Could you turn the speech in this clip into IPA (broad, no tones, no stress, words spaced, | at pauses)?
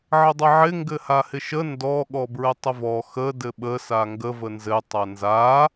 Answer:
ʕədˤɘʕɪ ŋɡɘhahɪʃə ndɔ ɠɔbɹɘtˤəvɔ xə dɘɓə saŋɡə vənzɘ tˤanza